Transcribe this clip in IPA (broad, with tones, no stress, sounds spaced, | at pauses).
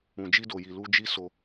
ũ˨ d͡ʒ i˧ d o˨ j i˨ l u˧ d͡ʒ i˦ s o˧